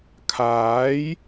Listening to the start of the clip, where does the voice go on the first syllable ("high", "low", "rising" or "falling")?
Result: rising